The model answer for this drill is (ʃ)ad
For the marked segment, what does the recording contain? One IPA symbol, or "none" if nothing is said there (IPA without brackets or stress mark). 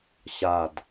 ɕ